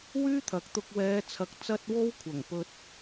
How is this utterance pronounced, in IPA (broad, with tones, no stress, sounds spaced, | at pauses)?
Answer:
w yː˥ t̪ʰ ɐ˨ k̚ t̪ ʊ˧ k̚ w ɛː˨˧ t͡sʰ ɐ˨ k̚ t͡s ɐ˧ t̚ w o˥ w kʷʰ ɐ˨˩ ŋ p ɵ˧ t̚